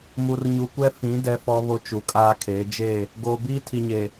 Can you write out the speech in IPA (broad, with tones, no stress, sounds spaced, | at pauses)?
m u˨ r ɲ u˨ kʷ ɛ˦ f ĩ˨˦ d ɛ˦ f ɔ˦ β o˦ t͡ʃ u˨ kʼ aː˦ kʰ eː˨˦ d͡ʒ e˦˨ | ɡ oː˨ b iː˦ tʰ i˨ ɲ e˨